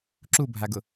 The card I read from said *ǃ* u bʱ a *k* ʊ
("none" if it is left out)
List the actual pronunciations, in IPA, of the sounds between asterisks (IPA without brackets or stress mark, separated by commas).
ǁ, ɡ